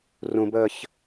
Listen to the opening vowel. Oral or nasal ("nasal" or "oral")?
nasal